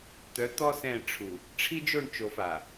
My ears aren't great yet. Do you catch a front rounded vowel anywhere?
yes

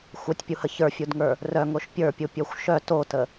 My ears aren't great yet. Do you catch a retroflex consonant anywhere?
no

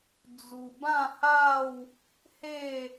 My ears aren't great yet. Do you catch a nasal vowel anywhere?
yes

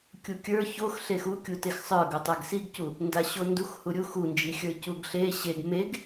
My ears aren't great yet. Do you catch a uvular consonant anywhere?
no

